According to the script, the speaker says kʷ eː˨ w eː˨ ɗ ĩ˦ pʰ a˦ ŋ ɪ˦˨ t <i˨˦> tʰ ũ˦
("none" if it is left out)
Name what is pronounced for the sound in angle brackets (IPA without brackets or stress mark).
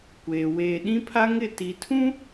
i˨